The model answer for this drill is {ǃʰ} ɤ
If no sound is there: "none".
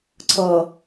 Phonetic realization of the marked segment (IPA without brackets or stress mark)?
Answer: ǀʰ